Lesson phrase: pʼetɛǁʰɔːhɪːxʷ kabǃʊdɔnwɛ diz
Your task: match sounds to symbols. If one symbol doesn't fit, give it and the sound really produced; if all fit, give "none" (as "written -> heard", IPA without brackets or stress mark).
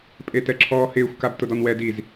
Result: ǃ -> t